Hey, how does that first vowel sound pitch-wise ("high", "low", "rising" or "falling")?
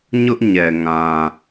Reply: high